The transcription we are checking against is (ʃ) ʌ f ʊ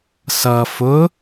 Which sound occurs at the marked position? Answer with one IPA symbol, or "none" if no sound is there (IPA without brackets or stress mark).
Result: s